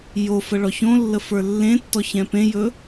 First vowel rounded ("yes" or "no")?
yes